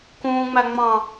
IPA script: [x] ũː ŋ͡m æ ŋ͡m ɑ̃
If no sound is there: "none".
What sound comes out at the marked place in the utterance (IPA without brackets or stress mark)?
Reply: k